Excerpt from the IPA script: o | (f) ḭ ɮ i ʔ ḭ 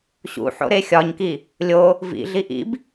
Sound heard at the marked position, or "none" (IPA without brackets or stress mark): v